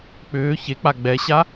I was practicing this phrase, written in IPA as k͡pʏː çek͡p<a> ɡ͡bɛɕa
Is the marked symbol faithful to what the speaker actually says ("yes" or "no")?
yes